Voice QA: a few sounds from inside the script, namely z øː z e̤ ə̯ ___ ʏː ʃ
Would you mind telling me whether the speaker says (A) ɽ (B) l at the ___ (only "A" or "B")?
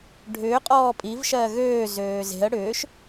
A